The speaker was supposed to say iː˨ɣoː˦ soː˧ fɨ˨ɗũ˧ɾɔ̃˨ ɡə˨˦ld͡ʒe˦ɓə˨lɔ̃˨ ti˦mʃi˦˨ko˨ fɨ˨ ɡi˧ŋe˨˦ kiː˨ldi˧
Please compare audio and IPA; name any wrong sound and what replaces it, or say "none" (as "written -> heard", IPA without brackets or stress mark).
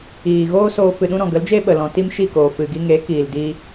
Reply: o˨ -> oː˨